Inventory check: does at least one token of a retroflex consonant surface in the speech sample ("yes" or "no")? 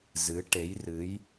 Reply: yes